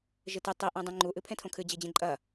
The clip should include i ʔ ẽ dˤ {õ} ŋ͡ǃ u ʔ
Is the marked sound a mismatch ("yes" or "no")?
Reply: yes